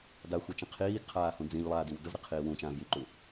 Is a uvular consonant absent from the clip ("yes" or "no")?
no